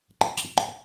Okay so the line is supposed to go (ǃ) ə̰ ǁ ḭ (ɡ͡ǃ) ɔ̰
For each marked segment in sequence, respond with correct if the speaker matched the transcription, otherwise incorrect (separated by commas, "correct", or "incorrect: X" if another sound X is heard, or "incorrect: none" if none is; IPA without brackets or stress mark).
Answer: correct, correct